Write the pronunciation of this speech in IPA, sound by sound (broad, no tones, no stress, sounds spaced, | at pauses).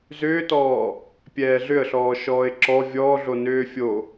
z ʏː t ɔː | pʲ ɛː ɮ ʏ ə̯ ɬ ɔː ʃ ɔː ɪ̯ ǁ ɔ vʲ ɔː ɮ o n ʏː fʲ o